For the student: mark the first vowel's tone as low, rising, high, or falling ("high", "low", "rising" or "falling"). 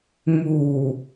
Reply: low